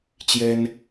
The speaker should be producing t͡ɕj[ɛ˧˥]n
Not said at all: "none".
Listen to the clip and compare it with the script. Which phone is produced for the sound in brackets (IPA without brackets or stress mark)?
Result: ɛ˥